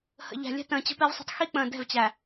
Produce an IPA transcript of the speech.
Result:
h ə̰˨ ʎ æ̤˨ lʲ ɛ̤˦ t ə̃ː˨ t͡ɕ ə̤˦ p ɛ˦ v sˤ ə̤˦ tˤ x i˦ k͡p ə̃ː˨ d ɛ̤˦˨ v t͡ɕ æ˨

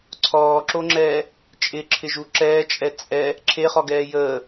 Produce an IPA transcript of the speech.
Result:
ǀʰ ɔː ǁ o ŋ͡ǁ ɛː | t͡ʃʼ ɪ ǁʰ ɪ ʒ u ǁ ɛː t͡ʃʼ ɛ t͡sʼ ɛ | ǁʰ e χ ɔ ɡ ɛː j əː

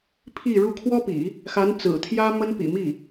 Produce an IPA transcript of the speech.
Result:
pʰ i˥˧ ɻ u˥˩ kʰ w ɔ˥ p ḭ˨˩˦ | x a˧˥ n t͡s ɹ̩˨˩ t̪ʰ j ä˥ m ə˥ n p ḭ˨˩ m i˥˩

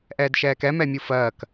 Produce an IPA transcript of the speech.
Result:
ʔ ɛː d ʃ ɛː k ɛ m ɛ mʲ u f ɜː k

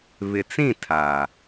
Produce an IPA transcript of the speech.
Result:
β ɪ˨ t͡s ĩ˦˨ tʰ a˨

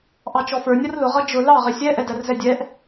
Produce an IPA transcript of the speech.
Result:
ʔ ɑ t͡ʃ ɔ f ə˞ nʲ ʌ r l ʊ ʁ ʌ d͡ʒ ʊ l ɑ ʁ ɪ sʲ ɛ ʔ ɛ d æ r z ɛ dʲ ɛ ʔ

